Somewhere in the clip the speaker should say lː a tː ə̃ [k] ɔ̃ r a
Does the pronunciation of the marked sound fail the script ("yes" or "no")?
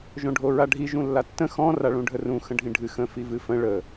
yes